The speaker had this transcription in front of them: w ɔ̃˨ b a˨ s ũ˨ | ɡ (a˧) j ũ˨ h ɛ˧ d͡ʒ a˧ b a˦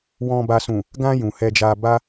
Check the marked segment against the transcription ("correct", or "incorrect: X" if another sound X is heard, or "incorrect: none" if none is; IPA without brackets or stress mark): incorrect: ã˧